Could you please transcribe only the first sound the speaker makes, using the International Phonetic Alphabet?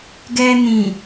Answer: ɡ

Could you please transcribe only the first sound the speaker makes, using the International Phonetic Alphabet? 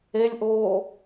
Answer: e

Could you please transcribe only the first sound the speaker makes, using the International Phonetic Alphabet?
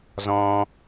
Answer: z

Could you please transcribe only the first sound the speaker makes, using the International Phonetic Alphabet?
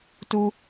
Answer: t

